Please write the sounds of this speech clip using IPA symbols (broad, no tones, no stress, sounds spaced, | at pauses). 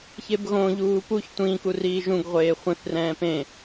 ç e b ɣ õ ʎ uː p u ç tʷ ĩ k u r iː ʒ ũ ɡ ʁʷ eː χʷ ĩ θ r ɛ̃ː p ẽ